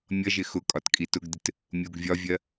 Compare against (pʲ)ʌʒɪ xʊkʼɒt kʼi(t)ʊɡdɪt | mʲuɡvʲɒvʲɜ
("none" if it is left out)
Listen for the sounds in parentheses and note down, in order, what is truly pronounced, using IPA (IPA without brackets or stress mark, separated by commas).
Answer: mʲ, t